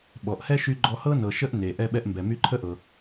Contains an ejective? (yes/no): no